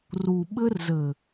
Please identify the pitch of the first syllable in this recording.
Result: low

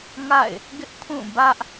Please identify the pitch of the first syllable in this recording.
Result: falling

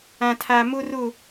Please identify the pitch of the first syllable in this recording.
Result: low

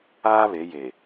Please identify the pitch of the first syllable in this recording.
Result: high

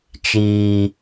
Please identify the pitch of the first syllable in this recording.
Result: low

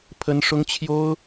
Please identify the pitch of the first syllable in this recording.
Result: high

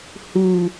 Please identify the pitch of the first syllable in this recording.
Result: low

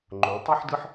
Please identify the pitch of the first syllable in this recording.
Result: rising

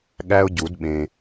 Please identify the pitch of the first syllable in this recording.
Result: high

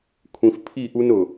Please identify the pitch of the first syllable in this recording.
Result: low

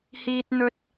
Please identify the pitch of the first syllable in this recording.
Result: high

